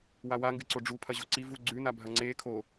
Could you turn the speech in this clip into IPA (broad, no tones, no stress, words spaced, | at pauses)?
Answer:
wawaŋɡɨǀo ɖ͡ʐu pʰɐʑoǀi vu ɡ͡ǀʉnabʱɐ ŋ͡ǀe kʰo